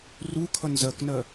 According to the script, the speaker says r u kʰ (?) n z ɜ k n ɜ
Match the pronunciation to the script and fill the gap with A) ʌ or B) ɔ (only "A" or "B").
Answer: A